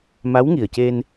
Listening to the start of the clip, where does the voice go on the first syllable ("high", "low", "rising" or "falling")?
rising